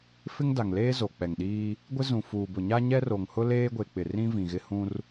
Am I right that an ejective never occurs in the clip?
yes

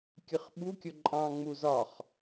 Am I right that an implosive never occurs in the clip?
no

